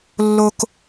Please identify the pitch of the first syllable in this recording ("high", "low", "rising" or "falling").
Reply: low